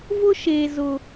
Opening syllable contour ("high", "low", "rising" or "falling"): high